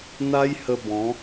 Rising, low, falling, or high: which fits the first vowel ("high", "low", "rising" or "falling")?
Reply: high